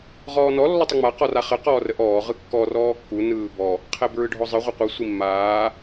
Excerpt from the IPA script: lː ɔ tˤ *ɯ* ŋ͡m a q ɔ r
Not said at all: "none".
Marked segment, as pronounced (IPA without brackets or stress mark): ə